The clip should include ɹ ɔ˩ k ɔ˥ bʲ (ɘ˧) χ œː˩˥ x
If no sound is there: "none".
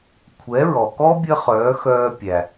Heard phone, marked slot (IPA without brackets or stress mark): ɘ˥